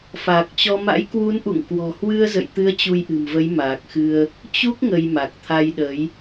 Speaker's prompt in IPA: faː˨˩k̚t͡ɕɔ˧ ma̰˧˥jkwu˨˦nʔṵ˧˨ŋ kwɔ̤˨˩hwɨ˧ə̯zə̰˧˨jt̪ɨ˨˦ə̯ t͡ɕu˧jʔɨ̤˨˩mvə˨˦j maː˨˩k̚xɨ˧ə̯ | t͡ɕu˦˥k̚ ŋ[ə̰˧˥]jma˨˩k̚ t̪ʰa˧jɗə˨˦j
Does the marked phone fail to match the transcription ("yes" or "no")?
yes